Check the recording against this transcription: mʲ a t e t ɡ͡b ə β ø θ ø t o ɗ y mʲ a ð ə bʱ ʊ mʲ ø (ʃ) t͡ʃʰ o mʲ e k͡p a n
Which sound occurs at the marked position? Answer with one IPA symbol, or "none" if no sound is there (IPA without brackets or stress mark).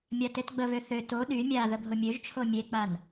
ʒ